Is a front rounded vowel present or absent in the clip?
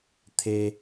absent